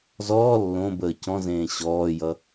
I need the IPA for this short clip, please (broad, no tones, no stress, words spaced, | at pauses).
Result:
zɔː lːõbəː cɔ̃zẽː ɕɔːjʌ